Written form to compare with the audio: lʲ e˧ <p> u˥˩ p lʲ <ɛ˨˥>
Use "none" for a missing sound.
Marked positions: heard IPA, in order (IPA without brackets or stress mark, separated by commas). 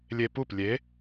p, e˨˥